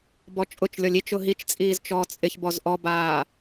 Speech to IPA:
bɔt͡ʃʼʊt͡ʃlʲɔlʲ it͡ʃʊ ɦit͡ʃt͡sʼiːz t͡ʃɔːt͡sʼɪçbɔz ʔɔbaː

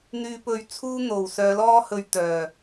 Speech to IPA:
n̪yː˧pɵ˧ɥt͡sʰuː˥ n̪o˨˩w sœː˨˧lɔː˥hɵ˧ɥt̪œː˨˩

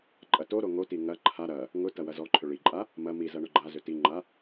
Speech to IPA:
ǃʼɐtoɾo ŋoti ŋɐ ǃʰa ɾɐ | ŋʊtɐ wɐzɔǃʰʏ ɭiǃʼa | mɐ mizɐ ɳʊɡ͡ǃazʏ tiŋ͡ǃa

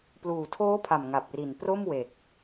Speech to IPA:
pluː˨˩tʰoː˦˥pʰa˨˩m ŋa˨˩p̚ri˨˩n pro˥˩mwe˨˩k̚

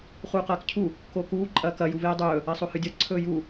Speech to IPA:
χuːqɐːkcʰu | kokuː ǃʼɐːkɐ juveːdˤɵː | ɐsˤohɨdʲɐ ǀʰɵːju

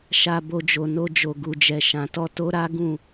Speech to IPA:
ʃa˧bo˧d͡ʒo˨no˧ d͡ʒo˨ɡu˨d͡ʒɛ˨ ʃã˨tɔ˧ to˦ ɾa˦ ɡũ˦˨

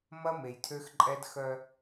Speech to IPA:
mɐ˦me˨jtʰø˦xǃʼɛ˦d xœ˦

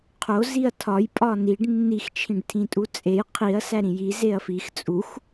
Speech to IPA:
qʰo ziɐ̯tʰɒj pʼɒniɖ nːix t͡ʃʰĩɖtʰĩtʼut͡sʼej qʰiɐ̯ sæɾĩji zeɐ̯fix t͡sʼux

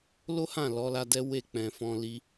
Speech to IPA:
lo˦hã˦˨ lɔ˨˦la˧dɛ˦ we˦˨k͡pɛ̃˨fɔ̃˧ li˦

